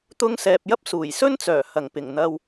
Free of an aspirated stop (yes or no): yes